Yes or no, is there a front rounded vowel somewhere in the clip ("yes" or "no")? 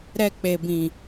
no